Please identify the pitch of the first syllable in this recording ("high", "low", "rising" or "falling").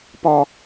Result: high